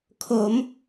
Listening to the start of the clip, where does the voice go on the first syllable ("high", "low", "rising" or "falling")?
rising